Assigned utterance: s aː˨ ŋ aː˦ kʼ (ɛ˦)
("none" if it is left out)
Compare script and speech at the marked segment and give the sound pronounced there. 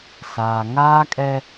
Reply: ɛ˦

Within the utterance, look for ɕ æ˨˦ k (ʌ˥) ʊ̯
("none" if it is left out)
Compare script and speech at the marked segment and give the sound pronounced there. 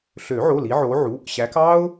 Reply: ɑ˥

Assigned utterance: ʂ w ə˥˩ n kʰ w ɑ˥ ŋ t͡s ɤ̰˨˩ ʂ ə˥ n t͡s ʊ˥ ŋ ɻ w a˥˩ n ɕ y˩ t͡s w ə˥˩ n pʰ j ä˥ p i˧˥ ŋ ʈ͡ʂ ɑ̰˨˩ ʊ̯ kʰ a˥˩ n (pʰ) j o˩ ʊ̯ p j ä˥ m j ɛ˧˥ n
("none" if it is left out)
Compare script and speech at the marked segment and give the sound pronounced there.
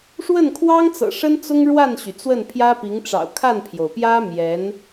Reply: pʰ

